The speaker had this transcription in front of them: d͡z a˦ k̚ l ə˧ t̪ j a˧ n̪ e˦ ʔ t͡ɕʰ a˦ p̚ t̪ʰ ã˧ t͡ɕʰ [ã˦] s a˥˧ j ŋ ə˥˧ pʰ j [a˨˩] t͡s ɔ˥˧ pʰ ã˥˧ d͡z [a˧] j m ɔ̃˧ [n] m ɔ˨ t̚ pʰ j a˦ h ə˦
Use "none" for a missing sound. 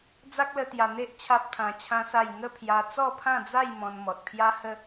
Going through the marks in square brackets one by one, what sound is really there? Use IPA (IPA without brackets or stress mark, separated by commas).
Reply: ã˦, a˧, a˥˧, n